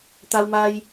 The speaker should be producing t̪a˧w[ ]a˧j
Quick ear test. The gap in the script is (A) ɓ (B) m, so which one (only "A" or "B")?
B